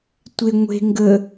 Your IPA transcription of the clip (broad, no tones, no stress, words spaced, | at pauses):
tʷe ŋʷe̤ ŋɡə